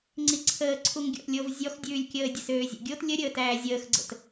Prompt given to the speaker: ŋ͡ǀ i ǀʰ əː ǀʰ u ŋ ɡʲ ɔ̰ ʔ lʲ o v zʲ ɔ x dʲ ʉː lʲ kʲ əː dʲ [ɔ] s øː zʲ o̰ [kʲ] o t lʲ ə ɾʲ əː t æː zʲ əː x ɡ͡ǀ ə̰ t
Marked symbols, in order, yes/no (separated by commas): no, no